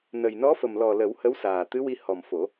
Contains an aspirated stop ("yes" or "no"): no